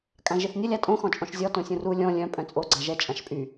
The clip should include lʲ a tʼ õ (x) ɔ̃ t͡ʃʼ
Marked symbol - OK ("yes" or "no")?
yes